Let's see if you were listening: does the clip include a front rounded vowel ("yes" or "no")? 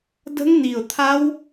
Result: no